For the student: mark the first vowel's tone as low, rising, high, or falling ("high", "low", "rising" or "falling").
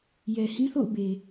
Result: low